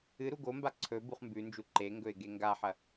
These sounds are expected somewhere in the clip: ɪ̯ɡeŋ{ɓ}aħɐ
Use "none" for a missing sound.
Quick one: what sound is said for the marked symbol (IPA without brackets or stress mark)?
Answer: ɡ